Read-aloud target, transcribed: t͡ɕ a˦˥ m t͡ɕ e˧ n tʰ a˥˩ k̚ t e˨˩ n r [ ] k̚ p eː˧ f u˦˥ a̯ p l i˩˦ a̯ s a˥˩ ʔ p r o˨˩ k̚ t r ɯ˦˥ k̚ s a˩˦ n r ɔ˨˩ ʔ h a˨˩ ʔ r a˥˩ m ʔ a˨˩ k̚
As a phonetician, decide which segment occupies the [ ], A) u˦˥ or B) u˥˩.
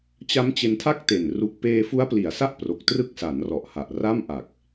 A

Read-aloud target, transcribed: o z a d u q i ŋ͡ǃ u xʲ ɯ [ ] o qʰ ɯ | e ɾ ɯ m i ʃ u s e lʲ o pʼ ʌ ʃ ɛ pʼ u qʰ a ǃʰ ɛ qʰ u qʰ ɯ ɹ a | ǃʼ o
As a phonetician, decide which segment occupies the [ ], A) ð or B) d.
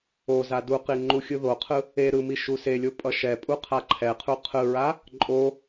A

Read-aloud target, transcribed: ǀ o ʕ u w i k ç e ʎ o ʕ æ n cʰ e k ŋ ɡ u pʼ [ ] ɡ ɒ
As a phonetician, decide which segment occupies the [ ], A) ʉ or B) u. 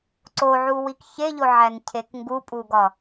B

